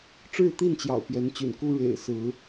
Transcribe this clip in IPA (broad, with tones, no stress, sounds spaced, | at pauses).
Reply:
ʈ͡ʂ ɻ̩˥˨ t̪ i˥˨ n t͡ɕ j ɑ̰˨˩ ʊ̯ p j ɛ˨˦ n t͡ɕ y̰˨˩ n k u˦ ɻ ḛ˨˩ ɪ̯ s ɹ̩˨˦